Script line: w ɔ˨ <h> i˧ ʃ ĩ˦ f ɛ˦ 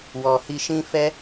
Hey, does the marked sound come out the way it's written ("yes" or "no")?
yes